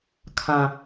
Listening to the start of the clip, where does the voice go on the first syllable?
low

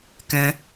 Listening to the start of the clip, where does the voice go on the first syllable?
high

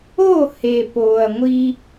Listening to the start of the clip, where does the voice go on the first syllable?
falling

